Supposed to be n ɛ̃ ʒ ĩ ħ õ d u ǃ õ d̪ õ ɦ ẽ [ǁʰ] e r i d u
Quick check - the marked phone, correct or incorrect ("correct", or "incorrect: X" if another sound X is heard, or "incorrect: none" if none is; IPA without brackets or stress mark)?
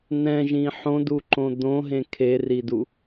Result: incorrect: kʰ